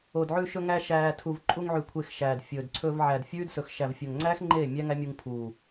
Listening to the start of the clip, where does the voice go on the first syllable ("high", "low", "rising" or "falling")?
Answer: low